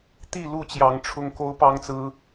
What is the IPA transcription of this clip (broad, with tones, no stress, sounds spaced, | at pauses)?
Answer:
t̪ i˥˨ l u˥˨ t͡ɕ j ɑ˨˦ ŋ ʈ͡ʂʰ ʊ˦ ŋ k o˦ ʊ̯ p ɑ˦ ŋ t͡s ɹ̩˦